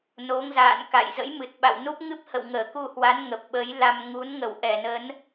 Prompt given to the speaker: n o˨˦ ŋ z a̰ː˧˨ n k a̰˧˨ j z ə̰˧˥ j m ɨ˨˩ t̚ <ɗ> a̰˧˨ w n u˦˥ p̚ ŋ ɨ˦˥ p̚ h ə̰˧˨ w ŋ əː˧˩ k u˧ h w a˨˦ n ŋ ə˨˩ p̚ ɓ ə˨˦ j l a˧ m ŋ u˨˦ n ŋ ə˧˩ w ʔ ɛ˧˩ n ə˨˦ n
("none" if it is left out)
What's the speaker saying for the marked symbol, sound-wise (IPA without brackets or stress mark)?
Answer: ɓ